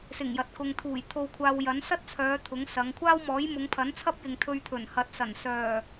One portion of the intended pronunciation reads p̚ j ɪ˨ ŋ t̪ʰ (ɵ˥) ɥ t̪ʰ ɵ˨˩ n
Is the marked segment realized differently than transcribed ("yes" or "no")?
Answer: yes